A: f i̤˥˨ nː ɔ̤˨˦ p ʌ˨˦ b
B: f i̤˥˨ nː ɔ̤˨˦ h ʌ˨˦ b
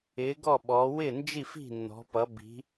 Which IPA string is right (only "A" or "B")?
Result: A